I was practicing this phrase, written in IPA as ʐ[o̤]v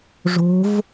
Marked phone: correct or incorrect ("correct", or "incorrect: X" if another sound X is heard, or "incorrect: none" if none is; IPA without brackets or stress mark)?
correct